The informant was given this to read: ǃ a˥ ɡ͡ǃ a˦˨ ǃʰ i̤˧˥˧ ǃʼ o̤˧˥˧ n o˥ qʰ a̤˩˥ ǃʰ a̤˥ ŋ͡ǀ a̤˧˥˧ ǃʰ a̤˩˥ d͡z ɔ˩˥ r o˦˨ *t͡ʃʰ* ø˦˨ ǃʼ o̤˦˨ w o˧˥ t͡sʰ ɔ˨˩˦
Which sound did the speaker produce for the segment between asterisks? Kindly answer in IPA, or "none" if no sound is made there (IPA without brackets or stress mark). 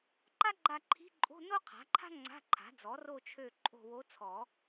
t͡ʃʰ